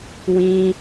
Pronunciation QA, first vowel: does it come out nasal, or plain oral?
nasal